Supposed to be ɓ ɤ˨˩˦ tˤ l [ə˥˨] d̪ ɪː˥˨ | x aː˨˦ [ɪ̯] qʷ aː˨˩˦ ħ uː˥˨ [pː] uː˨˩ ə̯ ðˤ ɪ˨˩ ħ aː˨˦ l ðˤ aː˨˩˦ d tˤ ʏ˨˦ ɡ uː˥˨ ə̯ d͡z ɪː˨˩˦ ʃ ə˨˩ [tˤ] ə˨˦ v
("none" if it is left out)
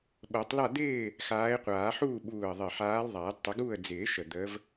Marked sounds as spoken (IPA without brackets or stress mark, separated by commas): a˥˨, ɪ̯, ɓ, d̪